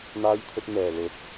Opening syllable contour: high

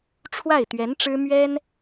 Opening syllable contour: falling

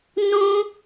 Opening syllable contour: high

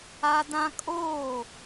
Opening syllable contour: high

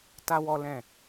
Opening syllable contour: high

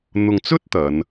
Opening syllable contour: low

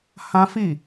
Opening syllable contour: high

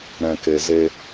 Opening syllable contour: low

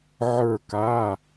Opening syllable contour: falling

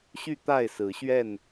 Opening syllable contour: falling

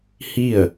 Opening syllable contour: falling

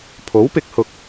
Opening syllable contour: rising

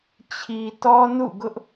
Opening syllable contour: low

